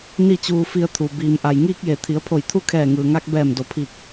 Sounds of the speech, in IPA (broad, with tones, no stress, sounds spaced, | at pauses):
n i˥˨ t͡ɕ uː˧ f i˧ ə̯ t̪ʰ u˩ b iː˩ m ʔ a˩ j ŋ iː˧ k̚ j e˩ t̪ʰ i˩˧ ə̯ pʰ o˧˩ j t̪ʰ u˥˨ kʰ ɛː˧˩ ŋ ɯː˩ ŋ a˧ k̚ b ɛː˧˩ m d o˩˧ pʰ i˧˩ k̚